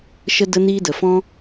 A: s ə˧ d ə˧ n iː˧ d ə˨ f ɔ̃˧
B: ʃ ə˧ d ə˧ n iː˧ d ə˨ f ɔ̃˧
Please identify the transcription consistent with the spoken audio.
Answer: B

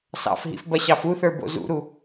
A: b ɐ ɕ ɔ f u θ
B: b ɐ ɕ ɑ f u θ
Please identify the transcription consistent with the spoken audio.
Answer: B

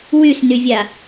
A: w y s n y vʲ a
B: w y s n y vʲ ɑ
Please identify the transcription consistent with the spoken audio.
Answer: A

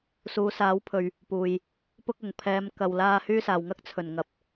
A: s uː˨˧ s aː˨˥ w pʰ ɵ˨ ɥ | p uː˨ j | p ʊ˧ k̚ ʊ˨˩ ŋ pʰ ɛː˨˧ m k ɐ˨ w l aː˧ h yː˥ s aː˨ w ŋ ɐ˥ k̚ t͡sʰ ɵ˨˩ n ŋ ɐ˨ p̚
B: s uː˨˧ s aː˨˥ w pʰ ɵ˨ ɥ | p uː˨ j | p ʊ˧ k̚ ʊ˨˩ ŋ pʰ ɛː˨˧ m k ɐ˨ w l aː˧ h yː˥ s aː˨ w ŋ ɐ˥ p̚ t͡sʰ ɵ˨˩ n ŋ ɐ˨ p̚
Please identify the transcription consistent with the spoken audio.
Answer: A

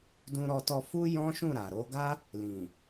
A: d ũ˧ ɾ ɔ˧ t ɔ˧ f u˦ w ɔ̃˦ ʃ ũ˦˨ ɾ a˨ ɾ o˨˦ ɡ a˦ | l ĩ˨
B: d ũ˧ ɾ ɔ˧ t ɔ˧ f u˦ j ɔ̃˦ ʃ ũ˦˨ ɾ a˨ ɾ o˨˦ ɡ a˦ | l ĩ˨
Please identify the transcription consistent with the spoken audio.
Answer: B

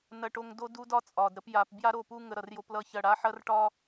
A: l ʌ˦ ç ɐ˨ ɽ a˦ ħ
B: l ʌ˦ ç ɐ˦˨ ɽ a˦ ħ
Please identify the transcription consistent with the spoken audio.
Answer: B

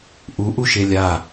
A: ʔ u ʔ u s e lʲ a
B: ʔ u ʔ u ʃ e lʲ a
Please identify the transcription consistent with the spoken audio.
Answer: B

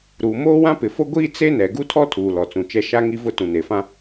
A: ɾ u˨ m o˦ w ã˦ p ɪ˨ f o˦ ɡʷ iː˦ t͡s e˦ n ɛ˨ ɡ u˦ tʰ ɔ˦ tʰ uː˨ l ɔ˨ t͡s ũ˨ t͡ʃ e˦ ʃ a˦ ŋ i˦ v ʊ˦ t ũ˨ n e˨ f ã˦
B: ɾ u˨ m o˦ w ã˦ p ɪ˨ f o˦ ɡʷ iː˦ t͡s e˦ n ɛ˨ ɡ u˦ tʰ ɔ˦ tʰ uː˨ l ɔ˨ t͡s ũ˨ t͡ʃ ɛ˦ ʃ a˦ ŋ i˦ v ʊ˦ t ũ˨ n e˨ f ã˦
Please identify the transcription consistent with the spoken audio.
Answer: B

